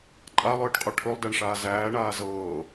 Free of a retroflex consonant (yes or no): no